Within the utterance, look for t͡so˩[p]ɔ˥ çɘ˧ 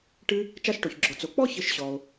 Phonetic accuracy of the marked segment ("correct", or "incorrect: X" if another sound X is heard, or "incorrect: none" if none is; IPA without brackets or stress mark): incorrect: k͡p